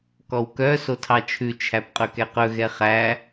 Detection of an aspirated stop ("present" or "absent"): present